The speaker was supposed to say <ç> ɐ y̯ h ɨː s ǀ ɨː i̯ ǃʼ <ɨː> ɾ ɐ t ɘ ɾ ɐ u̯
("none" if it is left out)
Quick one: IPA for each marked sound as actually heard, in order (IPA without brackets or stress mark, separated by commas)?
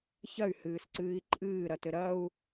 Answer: ç, ɨː